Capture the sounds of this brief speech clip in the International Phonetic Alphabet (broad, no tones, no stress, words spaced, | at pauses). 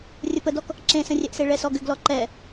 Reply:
rʲəpədɔk | ǁẽsə̃rʲɛʔse ɭɛsɔɡʏɡlɔ ǃɛ